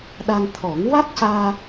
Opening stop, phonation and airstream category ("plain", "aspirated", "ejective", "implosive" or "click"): implosive